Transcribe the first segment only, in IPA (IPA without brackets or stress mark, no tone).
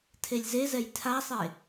tʰ